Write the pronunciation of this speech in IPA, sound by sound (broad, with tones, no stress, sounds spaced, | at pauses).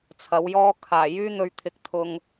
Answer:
t͡sʰ ɐ˨˥ w j ɔː˥ kʰ aː˨˩ j yː˥ n̪ ɵ˧ ɥ t̪ʰ ɪ˨˥ k̚ t̪ʰ ʊ˨ ŋ